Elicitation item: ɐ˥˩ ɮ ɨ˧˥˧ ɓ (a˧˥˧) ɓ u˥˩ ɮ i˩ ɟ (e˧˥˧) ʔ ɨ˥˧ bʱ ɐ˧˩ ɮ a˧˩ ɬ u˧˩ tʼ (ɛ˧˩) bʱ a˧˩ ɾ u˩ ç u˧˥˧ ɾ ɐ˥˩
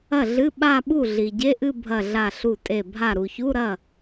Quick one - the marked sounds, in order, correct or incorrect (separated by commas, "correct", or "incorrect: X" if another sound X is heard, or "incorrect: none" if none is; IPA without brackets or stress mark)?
incorrect: a˥˧, correct, incorrect: e˧˩